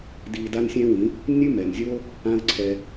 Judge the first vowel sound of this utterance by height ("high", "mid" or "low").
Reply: high